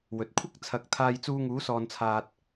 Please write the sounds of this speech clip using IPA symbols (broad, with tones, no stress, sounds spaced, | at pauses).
w ɵ˨ t̚ kʷʰ ɐ˥ k̚ t͡sʰ ɐ˨˥ k̚ t̪ʰ aː˧ j t͡s uː˧ ŋ uː˨˧ s ɔː˨ n t͡sʰ aː˨ t̚